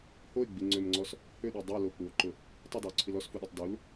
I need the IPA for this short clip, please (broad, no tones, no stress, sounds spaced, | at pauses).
h o e̯ ɡ͡b i ŋ͡ǀ ø m ŋ͡ǀ ɔ s | h ø ɗ i dˤ œ l o k͡p u o̯ ǃ ʊ | tˤ ɪ dˤ œ o̯ ǀʰ i l ɔ s f u ɗ o tˤ d u l